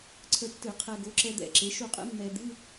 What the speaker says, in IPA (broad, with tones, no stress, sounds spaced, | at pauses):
ǀʰ ə˧˥ tː ɨ˧˩˧ qʰ ɛ˧ ɡ o˩˥ ǁ ɛ˧ d̪ ɛ̰˧˩˧ ǁ e˩˥ ʃ u˧ qʼ ɛ̰˧˥ mː ɛ˧ d̪ ɨ˧˥˧